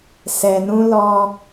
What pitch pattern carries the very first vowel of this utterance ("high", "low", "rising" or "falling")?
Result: low